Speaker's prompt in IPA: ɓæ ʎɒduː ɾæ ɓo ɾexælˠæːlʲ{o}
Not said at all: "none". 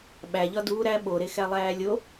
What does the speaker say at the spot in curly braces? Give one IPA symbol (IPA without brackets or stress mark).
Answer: o